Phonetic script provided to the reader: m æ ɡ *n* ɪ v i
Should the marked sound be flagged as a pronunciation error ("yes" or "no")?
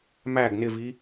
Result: no